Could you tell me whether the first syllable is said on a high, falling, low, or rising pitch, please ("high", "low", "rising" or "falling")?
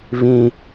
high